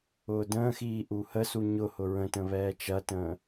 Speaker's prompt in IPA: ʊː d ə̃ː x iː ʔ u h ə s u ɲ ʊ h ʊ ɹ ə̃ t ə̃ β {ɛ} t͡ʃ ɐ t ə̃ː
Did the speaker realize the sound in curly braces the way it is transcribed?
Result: no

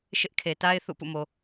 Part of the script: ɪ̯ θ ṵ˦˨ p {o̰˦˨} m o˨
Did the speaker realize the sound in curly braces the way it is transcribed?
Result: no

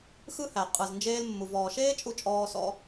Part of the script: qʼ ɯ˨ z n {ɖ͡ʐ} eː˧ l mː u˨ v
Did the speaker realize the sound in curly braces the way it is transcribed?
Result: no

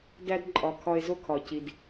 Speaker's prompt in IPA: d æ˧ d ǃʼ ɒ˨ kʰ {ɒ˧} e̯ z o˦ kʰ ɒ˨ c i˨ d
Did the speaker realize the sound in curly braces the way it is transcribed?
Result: yes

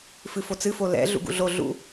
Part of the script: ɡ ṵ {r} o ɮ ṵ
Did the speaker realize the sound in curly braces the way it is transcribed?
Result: no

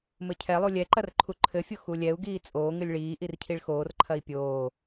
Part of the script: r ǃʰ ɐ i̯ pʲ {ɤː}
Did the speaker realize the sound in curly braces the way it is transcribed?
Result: no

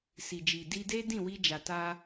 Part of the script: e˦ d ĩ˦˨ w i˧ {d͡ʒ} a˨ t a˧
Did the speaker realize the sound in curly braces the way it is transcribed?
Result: yes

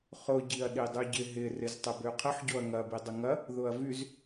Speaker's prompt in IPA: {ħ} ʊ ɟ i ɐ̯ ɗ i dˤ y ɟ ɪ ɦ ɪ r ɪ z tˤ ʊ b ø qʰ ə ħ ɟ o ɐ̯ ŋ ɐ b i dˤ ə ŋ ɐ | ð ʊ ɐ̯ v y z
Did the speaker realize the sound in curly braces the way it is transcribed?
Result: no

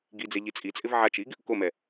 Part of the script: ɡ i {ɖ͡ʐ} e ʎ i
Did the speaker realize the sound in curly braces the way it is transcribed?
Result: no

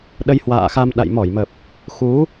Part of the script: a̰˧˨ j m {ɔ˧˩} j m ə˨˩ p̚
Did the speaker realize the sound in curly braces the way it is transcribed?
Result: yes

